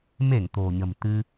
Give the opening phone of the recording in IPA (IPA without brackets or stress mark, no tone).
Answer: m